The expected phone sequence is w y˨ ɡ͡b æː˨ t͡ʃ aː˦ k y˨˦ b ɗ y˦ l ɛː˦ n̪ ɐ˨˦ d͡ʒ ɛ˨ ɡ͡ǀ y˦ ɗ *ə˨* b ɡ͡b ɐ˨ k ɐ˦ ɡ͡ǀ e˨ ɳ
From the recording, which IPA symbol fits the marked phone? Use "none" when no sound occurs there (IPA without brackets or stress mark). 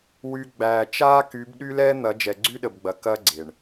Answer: ə˨